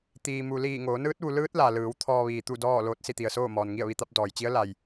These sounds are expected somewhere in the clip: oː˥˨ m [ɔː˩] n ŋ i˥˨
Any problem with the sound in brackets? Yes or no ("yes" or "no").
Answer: no